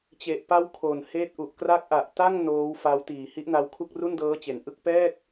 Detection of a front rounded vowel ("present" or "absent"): absent